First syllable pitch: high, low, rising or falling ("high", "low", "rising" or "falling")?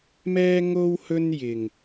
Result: high